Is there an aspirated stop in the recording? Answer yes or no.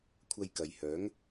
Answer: yes